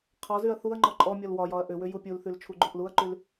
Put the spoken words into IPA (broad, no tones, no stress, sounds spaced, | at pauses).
qʰ ɒ z y ɐ̯ θ u ɐ̯ ŋ͡ǃ ɔ ǃʼ ɔ mʲ ɔ l w ɒ j ɒ ɐ̯ ʔ ʏ w ʏ j u pʲ u l θ y l t͡ʃʰ u ɡ͡ǃ u ʔ l u ɐ̯ ǃ y l